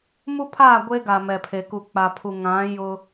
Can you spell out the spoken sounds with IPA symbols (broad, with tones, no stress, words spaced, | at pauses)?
mu˦pʰaː˦˨ ɡʷe˦ ɡa˨mɛ˨pʰe˨ku˨ k͡pa˨pʰu˨ ŋã˨˦ jʊ˦